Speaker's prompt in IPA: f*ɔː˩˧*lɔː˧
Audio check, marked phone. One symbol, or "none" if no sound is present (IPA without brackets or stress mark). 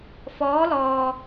ɔː˧˥